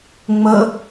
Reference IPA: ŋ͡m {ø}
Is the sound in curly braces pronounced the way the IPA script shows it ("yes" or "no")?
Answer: no